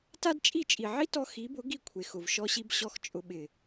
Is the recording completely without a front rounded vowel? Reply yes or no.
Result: yes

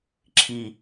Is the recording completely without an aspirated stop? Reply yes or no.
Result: no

